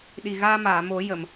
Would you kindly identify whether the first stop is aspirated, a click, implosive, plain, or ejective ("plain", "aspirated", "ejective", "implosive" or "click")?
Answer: implosive